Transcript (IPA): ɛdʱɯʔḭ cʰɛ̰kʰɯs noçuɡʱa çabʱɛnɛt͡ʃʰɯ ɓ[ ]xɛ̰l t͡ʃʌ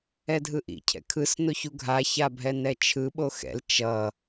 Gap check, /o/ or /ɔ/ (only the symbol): o